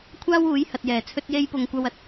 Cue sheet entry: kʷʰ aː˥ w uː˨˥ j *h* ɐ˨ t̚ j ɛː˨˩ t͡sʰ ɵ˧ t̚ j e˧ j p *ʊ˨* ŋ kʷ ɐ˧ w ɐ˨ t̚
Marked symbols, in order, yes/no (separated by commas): yes, yes